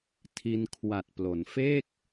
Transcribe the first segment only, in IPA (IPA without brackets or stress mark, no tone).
tʰ